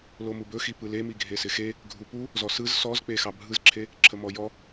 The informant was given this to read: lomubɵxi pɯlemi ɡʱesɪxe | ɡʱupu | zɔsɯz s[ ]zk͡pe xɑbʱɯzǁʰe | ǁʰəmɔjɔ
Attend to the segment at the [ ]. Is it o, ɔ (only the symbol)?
ɔ